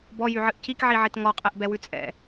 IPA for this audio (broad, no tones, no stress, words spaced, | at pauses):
bɔjyʕɨʔ cikʕiʕit ŋɔqʼɛʔbɛwʉ t͡sʼɛ̰